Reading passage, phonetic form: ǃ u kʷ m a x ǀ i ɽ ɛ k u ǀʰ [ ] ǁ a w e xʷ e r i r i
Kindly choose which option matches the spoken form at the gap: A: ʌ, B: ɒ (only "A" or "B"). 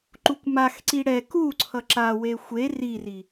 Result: A